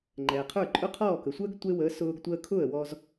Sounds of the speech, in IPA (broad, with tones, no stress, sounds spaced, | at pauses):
ŋ͡ǃ ɛː˩ qʰ ə˞˥˩ ǃʼ ʊ˥ qʰ ɔː˥˩ k ə˩ sʷ əː˥ ɡ tʷ e˥ w əː˩˥ s ʊː˧ ɡ tʷ əː˧ kʰ ʊ˥˩ ə̯ w ɔ˧ z